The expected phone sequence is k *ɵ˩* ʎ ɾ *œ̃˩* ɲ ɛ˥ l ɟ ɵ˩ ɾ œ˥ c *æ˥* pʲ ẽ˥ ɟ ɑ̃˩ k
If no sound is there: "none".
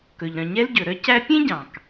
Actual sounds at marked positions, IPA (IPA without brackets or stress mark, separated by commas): ɵ˩, œ̃˩, æ˥